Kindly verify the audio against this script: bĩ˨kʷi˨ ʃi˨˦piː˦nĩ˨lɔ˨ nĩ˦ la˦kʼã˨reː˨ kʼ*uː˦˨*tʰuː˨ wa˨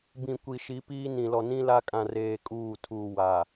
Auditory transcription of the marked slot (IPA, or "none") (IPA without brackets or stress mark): uː˦˨